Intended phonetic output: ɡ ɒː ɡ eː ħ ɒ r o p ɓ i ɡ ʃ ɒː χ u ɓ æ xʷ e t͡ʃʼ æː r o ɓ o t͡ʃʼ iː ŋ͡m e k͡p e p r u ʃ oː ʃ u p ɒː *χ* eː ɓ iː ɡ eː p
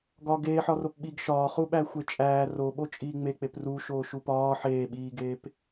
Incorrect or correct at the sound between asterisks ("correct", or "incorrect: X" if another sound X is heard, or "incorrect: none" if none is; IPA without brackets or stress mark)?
incorrect: ħ